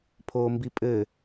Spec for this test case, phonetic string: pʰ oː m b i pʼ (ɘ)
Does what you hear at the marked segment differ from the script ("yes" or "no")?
no